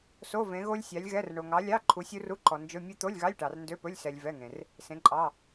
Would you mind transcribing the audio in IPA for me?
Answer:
s o˧˥˧ v ẽ˨˥ ɣ o˦˥ lʲ sʲ ɑ˨˥ lʲ ɣ ɛ˧˥˧ r ɳ o˨ ŋ ɑ˨˥ lʲ ɑ˧˥˧ ǃʰ u˨˥ sʲ u˦˥ r u˧˥˧ ǃ ɔ˨ n d͡ʒ ɵ˧˥˧ mʲ ɵ˦˥ t̪ o˧˥˧ lʲ ɣ ɑ˧˥˧ lʲ ʈ ɑ˨ r n d ø˧˥˧ p ɵ˧˥˧ lʲ s ɛ˨ lʲ v ɛ˧˥˧ ŋ ẽ˨ r | s ẽ˨˥ ǃʼ ɑ˧˥˧

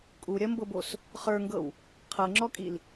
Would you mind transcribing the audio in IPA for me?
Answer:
kʼ u ɾʲ ɐ m b ɤ b o s | χ ə˞ ŋ ɡ ɤ w | qʰ ɤ ŋ͡ǁ ɔ kʼ i l

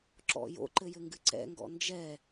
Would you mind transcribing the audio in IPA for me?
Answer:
ǁ ɔ̰ j o̰ ǃ ɘ j ɘ ŋ ɡ ɨ ǀ ɛ̰ ŋ ɡ ɔ̰ n d͡ʒ ɛ

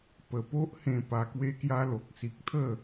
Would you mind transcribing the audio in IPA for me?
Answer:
p ə˨˩ p o˦ ʔ h ẽ˧ p a˧ k w e˦ k j a˦ l o˨ k̚ s i˨ k̚ t̪ʰ ə˥˧

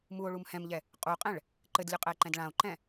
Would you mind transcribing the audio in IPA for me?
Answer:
m u o̯ ɭ u m h ɛ̃ m ʎ ɛ | qʼ u qʼ ɛ̃ ɭ | ǃ ɘ d lʲ u qʼ ɛ e̯ ǃ ɛ̃ d ɭ ã o̯ ǃ ɛ̃

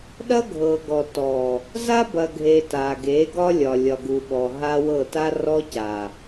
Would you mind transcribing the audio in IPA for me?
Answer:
ɗ ɐ˦ ɡʱ ɤ˨ ɡ ɔ˨ t ɔ˨ | z a˦ b ɐ˨ ɡʱ e˨ t a˨ ɡ e˨˦ ɡ ɒ˦ lʲ ɒ˨ lʲ ɒ˨ ɡ u˨ ɓ ɔ˨ ɦ a˦ w ɤ˦˨ t a˦ r ɔ˦ c a˨

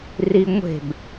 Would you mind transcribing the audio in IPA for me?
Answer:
r i ŋʷ e̤ b

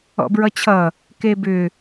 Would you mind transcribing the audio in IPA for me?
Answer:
ɔ̰ b ɹ ʌ t͡ɕʰ ʌ | k e b ʏ

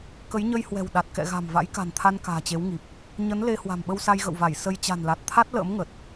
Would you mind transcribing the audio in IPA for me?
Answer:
k ə˨˦ j ɲ ə˧ j h w ɛ̤˨˩ w ɗ a˨˩ t̚ k ɛ̰˧˨ ɣ a̤˨˩ m v a̰˧˥ j k a̤˨˩ n t̪ʰ a˧ n k a̤ː˨˩ t͡ɕ e˨˦ w ŋ i˨˩ p̚ | ɲ ə˨˦ n l e˧ h w a̤˨˩ m ɓ ə˧ w s a˧ j ɣ ə̰˧˨ w v a˧˩ j s ə˧ j t͡ɕ a̤˨˩ n l a˨˩ t̚ t̪ʰ a˦˥ t̚ l ə̰ː˧˥ m ŋ ə˨˩ t̚

